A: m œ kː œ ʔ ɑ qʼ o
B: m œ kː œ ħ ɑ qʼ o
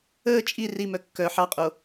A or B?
B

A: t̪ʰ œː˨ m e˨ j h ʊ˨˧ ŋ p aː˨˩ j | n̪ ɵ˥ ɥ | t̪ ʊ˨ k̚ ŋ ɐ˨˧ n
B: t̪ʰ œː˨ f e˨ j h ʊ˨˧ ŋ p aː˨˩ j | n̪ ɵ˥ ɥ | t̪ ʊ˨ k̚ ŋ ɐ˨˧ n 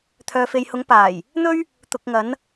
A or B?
B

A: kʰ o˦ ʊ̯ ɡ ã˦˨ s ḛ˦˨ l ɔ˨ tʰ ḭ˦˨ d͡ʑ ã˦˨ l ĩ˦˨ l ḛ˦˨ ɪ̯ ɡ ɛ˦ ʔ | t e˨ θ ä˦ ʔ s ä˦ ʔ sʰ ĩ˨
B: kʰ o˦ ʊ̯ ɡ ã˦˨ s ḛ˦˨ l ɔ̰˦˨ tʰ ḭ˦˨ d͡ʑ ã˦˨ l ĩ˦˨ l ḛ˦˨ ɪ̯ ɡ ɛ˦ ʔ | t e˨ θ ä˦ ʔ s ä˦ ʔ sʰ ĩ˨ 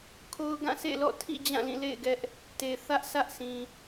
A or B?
B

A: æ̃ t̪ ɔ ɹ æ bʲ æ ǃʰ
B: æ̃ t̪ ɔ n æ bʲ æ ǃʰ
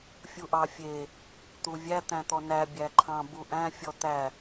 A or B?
B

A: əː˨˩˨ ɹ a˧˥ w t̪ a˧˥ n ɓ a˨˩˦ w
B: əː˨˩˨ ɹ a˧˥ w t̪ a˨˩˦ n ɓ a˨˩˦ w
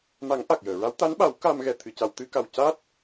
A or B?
A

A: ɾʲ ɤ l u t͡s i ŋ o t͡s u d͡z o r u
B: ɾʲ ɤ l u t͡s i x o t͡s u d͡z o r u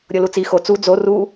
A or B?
B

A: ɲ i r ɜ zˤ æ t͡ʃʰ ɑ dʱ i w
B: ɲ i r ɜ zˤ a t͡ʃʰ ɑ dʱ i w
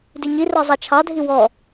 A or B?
B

